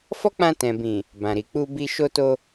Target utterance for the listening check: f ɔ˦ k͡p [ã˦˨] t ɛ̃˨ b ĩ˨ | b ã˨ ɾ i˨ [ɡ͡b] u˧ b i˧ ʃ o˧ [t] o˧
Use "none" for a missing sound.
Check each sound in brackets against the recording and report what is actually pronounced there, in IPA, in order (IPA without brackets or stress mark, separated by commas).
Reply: ã˧, k͡p, t